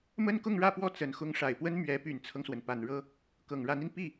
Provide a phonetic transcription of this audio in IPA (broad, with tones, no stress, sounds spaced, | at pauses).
m ə˥ n k ʊ˥˧ ŋ ɻ ä˥˧ p w ɔ˥˩ t͡s ə˨˩ n x ʊ˧˥ ŋ ʂ a˨˩ ɪ̯ p w ə˥ n m ɥ ɛ˧˥ p y˨˩ n t͡sʰ ɤ˦ ŋ s w ə˩ n p a˨˩ n ɻ ɤ˥ | k ɤ˨˩ ŋ ɻ a˧˥ n i˧ n p i˥˩